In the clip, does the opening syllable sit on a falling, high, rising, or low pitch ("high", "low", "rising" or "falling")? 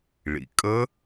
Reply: low